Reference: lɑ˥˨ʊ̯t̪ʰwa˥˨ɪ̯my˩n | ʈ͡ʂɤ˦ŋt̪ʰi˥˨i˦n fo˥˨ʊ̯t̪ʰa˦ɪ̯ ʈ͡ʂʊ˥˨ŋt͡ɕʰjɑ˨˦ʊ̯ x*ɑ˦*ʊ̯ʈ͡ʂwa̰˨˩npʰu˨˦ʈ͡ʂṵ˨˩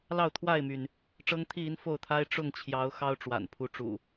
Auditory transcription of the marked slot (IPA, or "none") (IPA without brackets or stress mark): ɑ˦